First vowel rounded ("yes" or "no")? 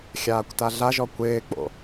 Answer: no